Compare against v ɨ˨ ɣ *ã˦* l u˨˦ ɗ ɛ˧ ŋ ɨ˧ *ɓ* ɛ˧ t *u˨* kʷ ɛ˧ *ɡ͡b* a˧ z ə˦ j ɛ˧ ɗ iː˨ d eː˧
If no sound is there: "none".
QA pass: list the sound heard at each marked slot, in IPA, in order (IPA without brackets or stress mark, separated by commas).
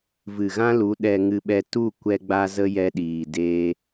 ã˦, ɓ, u˦˨, ɡ͡b